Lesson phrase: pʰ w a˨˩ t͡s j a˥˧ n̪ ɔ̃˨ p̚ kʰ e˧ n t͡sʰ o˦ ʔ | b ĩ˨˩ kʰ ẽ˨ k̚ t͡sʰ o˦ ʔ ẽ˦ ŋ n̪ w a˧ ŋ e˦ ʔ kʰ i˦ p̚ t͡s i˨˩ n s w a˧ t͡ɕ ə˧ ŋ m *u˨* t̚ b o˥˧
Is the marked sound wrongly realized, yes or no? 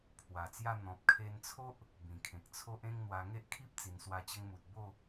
no